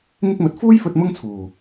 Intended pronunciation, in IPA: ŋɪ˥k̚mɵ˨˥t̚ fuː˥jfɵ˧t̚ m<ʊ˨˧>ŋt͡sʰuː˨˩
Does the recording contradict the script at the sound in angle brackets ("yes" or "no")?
yes